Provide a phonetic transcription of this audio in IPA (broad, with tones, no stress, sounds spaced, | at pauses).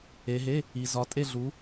e˨˦ ɦ e˧˥˧ | i˨ z ɒ˨˦ tʼ e˦˨ ɮ u˨˦